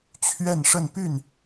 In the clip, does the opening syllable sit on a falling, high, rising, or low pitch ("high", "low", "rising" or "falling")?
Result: falling